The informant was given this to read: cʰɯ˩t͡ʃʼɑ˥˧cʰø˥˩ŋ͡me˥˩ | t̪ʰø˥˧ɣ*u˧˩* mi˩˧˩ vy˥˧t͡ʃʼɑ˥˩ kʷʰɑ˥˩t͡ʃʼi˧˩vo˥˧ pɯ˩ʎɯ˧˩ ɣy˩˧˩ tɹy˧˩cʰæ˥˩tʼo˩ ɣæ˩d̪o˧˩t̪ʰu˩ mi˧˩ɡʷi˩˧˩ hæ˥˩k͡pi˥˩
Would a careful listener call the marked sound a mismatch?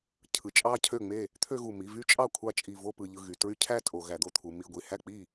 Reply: no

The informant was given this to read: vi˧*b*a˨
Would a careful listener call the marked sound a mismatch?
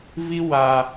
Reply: yes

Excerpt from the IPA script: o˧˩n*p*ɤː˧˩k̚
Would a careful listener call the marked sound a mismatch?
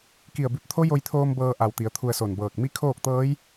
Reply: yes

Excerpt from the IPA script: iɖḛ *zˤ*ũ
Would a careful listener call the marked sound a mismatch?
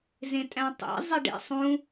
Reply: yes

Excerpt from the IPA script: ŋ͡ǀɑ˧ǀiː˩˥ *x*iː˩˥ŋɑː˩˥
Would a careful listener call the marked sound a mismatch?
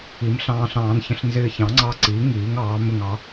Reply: yes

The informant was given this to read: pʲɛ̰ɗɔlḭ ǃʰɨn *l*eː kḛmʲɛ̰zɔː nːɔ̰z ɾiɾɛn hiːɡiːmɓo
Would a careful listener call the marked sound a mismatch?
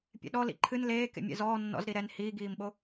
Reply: no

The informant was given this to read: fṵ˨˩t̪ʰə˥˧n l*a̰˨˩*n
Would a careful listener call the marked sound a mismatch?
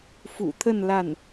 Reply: yes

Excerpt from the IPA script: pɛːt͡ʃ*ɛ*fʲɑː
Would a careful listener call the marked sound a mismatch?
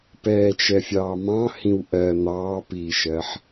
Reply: no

